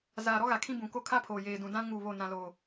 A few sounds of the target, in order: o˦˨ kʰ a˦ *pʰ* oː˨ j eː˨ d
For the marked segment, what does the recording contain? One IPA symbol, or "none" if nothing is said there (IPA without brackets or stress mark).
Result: pʰ